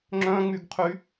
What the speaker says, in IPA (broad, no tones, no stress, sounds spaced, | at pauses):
ŋ͡ǁ œ̃ ŋ͡m y ɡ qʰ y